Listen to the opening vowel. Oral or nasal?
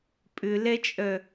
oral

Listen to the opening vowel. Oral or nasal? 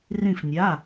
nasal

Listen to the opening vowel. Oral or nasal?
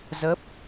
oral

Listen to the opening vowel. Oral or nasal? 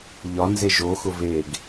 oral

